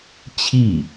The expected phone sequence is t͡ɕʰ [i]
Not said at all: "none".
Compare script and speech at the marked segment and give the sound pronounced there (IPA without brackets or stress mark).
i